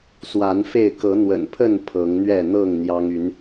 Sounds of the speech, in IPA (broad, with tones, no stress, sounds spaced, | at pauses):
s w a˨˦ n f e˥˨ ɪ̯ k ɤ˨˦ n̪ w ə̰˨˩ n pʰ ə˥˨ n pʰ ɤ˨˦ ŋ n̪ ɥ ɛ˥˨ n̪ ɤ˥˨ ŋ n̪ j ɑ˦ ŋ y˨˦ n